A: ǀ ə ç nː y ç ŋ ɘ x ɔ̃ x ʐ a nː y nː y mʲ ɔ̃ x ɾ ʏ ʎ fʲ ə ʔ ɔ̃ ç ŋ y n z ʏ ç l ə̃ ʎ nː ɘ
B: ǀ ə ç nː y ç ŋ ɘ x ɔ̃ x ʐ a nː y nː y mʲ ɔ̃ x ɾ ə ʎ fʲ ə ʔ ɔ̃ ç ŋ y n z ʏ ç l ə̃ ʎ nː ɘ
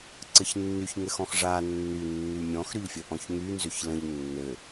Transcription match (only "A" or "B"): A